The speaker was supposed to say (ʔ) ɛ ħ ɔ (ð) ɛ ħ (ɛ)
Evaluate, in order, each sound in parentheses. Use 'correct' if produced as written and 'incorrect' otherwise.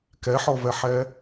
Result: incorrect: k, incorrect: v, correct

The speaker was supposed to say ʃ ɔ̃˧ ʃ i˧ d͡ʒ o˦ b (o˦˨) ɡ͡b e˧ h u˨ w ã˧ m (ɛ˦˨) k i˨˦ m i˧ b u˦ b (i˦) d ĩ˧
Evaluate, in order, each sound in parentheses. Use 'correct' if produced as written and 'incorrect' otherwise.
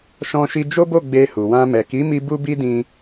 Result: correct, incorrect: ɛ˨, correct

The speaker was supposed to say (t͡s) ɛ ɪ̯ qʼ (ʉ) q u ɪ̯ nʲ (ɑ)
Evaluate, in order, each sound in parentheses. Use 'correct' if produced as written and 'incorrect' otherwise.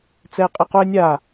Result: correct, incorrect: ɘ, incorrect: a

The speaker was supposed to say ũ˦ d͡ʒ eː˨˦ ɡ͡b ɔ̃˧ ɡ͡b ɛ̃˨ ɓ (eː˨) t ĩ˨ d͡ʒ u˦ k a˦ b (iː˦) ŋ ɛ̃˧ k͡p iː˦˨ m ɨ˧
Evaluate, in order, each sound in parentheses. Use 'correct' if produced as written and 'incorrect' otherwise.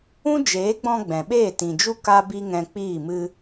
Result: incorrect: eː˦˨, incorrect: i˦

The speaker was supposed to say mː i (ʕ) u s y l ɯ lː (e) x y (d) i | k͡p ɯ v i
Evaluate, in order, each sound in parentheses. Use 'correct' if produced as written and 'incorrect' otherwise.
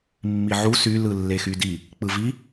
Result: correct, correct, correct

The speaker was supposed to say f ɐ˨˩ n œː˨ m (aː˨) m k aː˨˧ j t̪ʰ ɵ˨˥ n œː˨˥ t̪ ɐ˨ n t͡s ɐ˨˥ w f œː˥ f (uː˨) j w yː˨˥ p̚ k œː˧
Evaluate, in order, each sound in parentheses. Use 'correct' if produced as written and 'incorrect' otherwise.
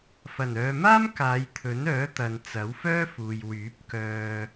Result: incorrect: aː˥, correct

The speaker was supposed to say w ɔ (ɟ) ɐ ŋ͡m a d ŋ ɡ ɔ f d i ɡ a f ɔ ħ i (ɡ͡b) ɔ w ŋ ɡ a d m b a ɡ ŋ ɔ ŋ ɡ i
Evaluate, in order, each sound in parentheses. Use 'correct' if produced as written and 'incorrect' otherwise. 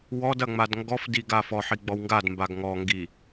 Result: incorrect: d, correct

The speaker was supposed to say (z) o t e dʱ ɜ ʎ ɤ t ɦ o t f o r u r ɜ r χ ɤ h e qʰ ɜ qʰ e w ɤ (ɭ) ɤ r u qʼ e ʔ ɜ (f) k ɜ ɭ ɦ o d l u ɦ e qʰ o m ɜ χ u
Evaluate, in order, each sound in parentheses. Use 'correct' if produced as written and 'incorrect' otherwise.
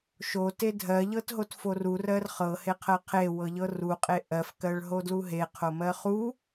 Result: incorrect: ʃ, incorrect: ʎ, correct

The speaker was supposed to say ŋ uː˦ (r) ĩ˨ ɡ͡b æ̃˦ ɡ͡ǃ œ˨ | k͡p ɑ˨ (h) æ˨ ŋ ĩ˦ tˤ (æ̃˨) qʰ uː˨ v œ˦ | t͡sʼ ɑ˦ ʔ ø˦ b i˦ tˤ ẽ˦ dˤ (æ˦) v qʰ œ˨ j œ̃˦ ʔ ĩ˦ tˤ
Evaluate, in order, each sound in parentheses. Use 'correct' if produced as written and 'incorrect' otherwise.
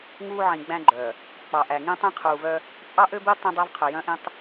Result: incorrect: ʕ, incorrect: ʔ, incorrect: æ̃˦, correct

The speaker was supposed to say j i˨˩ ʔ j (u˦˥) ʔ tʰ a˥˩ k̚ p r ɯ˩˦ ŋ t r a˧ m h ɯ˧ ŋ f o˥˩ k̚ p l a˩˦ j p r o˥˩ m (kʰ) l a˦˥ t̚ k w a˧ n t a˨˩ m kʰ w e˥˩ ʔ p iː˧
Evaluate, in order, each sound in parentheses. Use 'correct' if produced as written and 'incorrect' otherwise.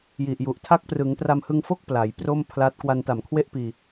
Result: incorrect: u˨˩, incorrect: pʰ

